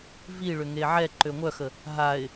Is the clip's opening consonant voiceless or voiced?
voiced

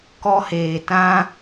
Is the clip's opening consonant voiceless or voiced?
voiceless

